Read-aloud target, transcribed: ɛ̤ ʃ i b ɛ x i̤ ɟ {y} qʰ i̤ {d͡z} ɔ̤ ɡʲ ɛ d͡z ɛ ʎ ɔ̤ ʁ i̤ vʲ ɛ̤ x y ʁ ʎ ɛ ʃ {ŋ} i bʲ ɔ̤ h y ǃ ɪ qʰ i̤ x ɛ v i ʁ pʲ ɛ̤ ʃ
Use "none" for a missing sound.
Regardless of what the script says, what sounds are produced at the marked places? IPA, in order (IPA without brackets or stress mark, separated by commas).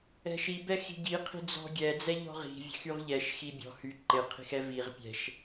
i, d͡z, x